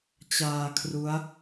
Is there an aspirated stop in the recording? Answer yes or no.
yes